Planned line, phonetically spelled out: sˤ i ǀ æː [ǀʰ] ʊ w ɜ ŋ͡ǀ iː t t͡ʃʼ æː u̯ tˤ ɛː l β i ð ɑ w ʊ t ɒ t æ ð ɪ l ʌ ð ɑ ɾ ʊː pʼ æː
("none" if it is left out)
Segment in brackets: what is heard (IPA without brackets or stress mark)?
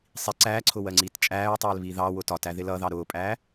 ǀʰ